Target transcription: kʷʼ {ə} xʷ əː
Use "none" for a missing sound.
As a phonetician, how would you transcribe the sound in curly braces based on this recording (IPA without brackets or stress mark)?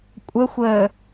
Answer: ə